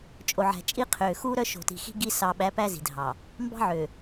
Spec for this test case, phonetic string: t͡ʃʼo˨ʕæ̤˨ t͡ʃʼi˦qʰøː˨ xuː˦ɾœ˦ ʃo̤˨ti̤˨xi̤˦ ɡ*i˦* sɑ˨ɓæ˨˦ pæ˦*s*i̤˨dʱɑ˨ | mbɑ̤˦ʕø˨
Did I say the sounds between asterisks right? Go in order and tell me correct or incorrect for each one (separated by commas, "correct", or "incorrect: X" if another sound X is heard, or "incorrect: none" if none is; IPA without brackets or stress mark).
correct, incorrect: z